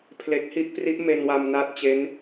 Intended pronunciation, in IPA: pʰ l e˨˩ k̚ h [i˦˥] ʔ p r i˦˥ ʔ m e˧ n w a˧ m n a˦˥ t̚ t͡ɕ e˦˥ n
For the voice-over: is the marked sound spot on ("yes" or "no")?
yes